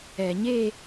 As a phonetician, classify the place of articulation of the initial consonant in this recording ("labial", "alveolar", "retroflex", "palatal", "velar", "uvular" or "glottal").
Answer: palatal